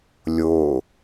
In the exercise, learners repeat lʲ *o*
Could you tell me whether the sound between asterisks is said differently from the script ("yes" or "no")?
no